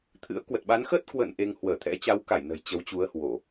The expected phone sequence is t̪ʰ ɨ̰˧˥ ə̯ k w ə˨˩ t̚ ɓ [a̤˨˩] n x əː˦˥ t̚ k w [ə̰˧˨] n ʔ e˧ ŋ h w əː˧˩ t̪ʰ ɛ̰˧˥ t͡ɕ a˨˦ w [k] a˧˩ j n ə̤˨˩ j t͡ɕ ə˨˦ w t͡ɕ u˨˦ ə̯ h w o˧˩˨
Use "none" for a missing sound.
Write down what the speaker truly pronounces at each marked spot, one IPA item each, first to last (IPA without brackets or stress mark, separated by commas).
a˨˦, ə̰˧˨, k